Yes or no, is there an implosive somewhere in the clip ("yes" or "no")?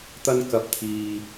no